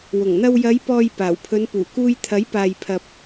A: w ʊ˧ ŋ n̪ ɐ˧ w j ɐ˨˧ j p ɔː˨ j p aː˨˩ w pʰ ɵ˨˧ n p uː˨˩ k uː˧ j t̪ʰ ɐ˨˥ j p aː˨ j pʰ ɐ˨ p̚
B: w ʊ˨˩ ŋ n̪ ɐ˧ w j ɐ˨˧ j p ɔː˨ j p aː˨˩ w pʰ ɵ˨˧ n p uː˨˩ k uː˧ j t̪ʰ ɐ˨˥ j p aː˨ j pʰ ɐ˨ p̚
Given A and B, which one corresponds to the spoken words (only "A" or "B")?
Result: B